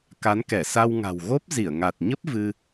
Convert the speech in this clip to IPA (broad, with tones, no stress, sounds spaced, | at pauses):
k a˨˦ n k ɛ˧˩ s a˧ w ŋ a̤˨˩ w ɣ o˦˥ p̚ z i˧˩ ə̯ ŋ a˨˩ t̚ ɲ ə˦˥ p̚ v ɨ˧